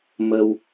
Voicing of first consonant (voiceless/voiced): voiced